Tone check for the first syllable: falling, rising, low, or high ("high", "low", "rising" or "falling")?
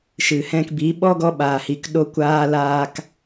low